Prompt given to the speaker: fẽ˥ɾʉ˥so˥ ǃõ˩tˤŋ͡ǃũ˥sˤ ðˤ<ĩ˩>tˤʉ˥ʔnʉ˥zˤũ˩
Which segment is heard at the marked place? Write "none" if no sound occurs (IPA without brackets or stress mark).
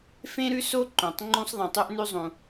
ĩ˩